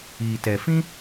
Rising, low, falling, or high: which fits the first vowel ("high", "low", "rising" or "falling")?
low